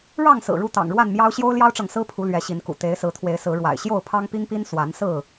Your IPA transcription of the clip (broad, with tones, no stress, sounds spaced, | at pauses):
ɻ ɑ˥˨ ŋ s ɹ̩˨˩ ɻ u˥˨ t̪ ɑ̰˨˩ ŋ ɻ w a˥˨ n m j ɑ˦ ʊ̯ ɕ j o˦ ʊ̯ l j ɑ˦ ʊ̯ ʈ͡ʂ ɤ˨ ŋ s ɹ̩˦ pʰ u˨˦ l ɥ ɛ˨˦ ɕ i˨˦ n k ṵ˨˩ t̪ e˨˦ ɪ̯ s ɹ̩˨˦ t̪ʰ w e˨˦ ɪ̯ s ɹ̩˨˦ ɻ w a̰˨˩ ɪ̯ ɕ j o˥˨ ʊ̯ pʰ ɑ˦ ŋ p i˦ ŋ p i˦ n s w a˨˦ n s ɹ̩˥˨